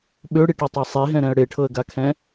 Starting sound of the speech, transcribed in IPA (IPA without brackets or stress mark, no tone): ɓ